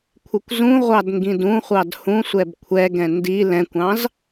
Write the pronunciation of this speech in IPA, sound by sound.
kʷʰ ɪ kʷ z ũ ʁʷ ɑ d ŋ ɡ ĩ d ũ χʷ ɑ d h ũ sʷ ɛ b kʷʰ ɛ ɡ ɛ̃ n d i l ɛ̃ kʷ ɑ̃ z

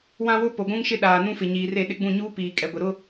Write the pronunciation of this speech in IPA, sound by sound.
w ã˦ w ʊ˦ p o˨ ɡʷ ũ˦ ŋ ʃ ɪ˦ ɗ aː˨ n ũ˦ f ɪ˨ ɲ iː˨ r e˦˨ ɗ ɪ˦ ɡ͡b ũ˦˨ ɲ uː˦ p iː˨ kʼ ɛ˨ ɡʷ ɪ˨ ɾ ʊ˦

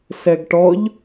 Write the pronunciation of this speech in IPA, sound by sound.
s ɛ ɡ ʈ ɔ ʎ

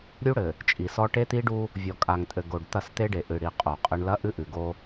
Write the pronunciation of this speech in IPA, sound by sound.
ɾʲ u˦ ɽ ɘ˨ | t͡ʃʼ i˨ s ɔ˦ ʈ e˦ t̪ i˦ ɖ u˦ | vʲ ɔ˨ kʼ a˨ ŋ tʼ ɘ˨ ɡ o˨ ɖ t̪ ɐ˦˨ s t̪ e˦ ɖ e˨ ʔ ɨ˨ ɽ i˨ qʼ o˨ qʼ ɘ˦ ɳ l ɐ˦ ʔ ɨ˦ ʔ ɨ˨ ɡ o˦

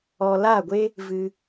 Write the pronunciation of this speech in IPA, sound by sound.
ɔ˨ l a˦˨ ɡʷ e˦ | v ɨ˧

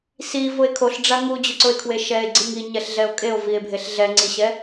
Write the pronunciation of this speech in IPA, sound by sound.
s i v ʊ e̯ kʰ o ɬ ɖ͡ʐ a ŋ u d͡ʑ ʊ ǀ ʊ e̯ kʰ w e ʃ ɛ e̯ ɡ͡ǀ i ŋ i ɲ ɛ ɬ ɮ ɛ o̯ kʼ e o̯ v i e̯ bʱ e ɬ ɮ ɛ ŋ͡ǀ i ɕ ɛ

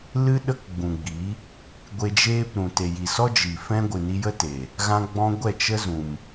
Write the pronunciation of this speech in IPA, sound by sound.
l ɨ˦ ɗ ə˦ k ɡ͡b ũ˨ ɡ͡b i˨˦ | ɡʷ e˧ d͡ʒ eː˦ p ɾ ũ˨ t e˨ j i˨ s ɔ˦ d͡ʒ i˨ f ɛ̃˦ ɡʷ ɨ˨ n i˧ j ə˦ t e˨ | ɣ ã˦ ɡ͡b ɔ̃˧ ɡʷ ɛ˦˨ t͡ʃ ə˦ z ũ˨ m

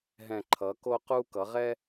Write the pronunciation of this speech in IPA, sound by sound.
ɦ ɛ̃˨˩ ǃʰ ʌ˩˧ k o˧ q u˧ k ʌ˩˧ ʁ ɛ˧

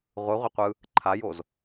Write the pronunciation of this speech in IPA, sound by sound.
ʁʷ ɯ ʁʷ ɛ qʷ ɯ | ǃʰ a j o z

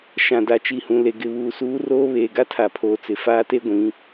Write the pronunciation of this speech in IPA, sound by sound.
ʃ ã˨ d a˨ t͡ʃ i˨ h ũ˨ l e˨ ɡ ɪ˨ β uː˨ s uː˦ r oː˦ β eː˨ ɡ a˦ tʰ a˨ pʰ oː˨ t͡s ɪ˨ f aː˦ t e˦ ɡʷ ĩ˨˦

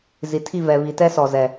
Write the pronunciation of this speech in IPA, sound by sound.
z i˨ tʰ i˦˨ v ɛ˨ β i˨ t ɛ˦ s ɔ˨ z ɛ˨

